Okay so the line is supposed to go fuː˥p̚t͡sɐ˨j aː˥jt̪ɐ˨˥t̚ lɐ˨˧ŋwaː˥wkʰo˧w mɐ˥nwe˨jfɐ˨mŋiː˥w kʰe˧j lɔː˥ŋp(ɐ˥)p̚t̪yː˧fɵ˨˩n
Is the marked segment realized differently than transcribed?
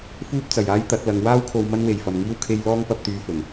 yes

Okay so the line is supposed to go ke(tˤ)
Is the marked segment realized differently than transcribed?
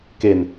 yes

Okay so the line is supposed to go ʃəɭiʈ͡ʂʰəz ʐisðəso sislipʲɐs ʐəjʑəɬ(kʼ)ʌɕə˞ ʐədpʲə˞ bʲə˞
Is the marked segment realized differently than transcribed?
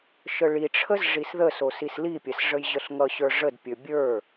yes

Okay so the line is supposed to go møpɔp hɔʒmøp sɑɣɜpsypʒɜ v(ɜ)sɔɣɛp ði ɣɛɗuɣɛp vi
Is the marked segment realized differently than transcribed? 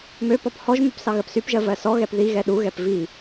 no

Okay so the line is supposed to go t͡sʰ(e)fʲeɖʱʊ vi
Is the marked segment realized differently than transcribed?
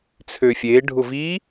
yes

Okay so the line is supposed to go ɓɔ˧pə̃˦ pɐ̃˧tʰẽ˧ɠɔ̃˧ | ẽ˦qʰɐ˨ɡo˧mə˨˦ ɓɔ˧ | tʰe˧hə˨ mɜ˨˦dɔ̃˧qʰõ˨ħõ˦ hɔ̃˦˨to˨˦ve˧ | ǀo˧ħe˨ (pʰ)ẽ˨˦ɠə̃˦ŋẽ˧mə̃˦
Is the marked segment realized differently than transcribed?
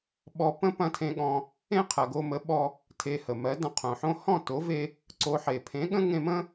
no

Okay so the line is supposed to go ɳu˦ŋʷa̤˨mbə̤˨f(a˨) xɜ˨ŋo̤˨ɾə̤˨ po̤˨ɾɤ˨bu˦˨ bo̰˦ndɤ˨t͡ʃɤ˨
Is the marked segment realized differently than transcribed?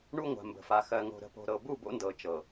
no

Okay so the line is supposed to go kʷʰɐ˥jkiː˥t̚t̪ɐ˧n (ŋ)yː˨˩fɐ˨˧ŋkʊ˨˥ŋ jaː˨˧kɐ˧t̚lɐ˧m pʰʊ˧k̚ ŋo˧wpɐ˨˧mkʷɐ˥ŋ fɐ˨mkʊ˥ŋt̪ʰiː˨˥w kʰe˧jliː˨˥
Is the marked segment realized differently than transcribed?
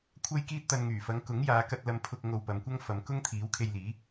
no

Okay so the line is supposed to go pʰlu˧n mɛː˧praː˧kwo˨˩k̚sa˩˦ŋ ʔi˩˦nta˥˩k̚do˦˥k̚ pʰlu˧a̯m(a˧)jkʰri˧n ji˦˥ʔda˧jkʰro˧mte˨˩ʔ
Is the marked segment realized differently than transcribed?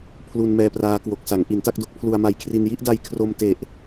no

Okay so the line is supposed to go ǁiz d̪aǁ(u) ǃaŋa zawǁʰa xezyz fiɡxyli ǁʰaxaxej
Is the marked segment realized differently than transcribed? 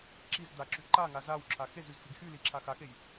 yes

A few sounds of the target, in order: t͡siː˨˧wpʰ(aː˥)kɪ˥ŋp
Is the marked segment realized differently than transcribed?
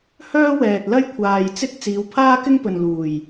no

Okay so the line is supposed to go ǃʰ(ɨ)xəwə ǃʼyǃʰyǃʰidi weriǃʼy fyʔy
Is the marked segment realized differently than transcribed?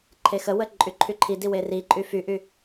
yes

